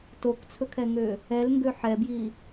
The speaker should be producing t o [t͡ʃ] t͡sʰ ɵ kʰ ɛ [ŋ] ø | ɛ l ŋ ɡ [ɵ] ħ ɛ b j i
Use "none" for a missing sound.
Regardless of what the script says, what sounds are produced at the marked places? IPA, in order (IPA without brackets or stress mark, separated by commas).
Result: k, ŋ, ø